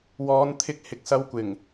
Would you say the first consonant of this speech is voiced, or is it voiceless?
voiced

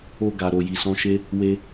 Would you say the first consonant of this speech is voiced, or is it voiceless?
voiced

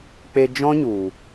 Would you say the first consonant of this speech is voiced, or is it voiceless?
voiceless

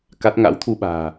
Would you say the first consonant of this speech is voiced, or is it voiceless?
voiceless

